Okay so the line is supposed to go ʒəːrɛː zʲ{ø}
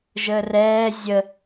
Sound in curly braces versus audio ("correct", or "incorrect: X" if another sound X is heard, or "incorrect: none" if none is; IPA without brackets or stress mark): incorrect: ə